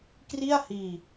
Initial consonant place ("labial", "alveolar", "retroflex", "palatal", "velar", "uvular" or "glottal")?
velar